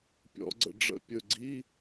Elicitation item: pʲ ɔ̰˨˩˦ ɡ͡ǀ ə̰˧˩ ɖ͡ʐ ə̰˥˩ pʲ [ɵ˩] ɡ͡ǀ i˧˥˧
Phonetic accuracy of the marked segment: incorrect: ɵ˧˩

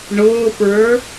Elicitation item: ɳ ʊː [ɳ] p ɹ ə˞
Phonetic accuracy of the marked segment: incorrect: none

